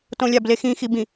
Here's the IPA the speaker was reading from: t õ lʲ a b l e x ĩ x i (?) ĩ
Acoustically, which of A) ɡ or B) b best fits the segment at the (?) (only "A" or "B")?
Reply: B